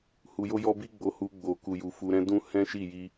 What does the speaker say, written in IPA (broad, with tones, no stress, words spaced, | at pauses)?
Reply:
hu˧jo˦jɔ˦ bi˦ɡ͡bo˧hu˧ ɡ͡bo˨ku˨ju˨ fu˧ɾɛ̃˦ dũ˦ hɛ̃˦ʃi˦˨ ji˧